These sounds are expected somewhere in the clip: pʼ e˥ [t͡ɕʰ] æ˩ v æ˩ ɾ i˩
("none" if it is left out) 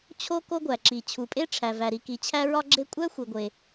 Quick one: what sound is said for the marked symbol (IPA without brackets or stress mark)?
ʈ͡ʂʰ